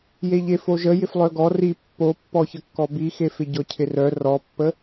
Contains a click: no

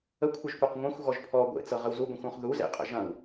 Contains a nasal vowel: yes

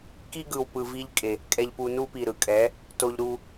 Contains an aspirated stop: no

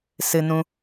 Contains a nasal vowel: yes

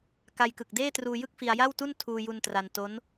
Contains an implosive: no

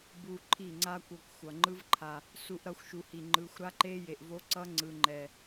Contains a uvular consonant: no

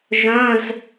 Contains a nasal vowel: yes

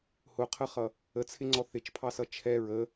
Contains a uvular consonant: yes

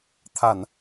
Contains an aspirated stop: yes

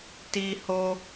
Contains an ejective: no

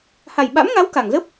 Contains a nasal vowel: no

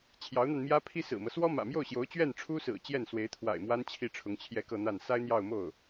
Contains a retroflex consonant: yes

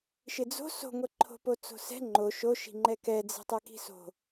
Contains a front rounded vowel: no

